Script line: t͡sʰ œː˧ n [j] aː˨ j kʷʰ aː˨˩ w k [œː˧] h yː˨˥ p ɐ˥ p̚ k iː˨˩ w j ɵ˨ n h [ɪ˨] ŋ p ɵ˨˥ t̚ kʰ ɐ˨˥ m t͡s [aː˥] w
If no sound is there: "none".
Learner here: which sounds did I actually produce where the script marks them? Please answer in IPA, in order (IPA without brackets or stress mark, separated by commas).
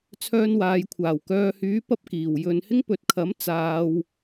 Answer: w, œː˧, ɪ˥, aː˧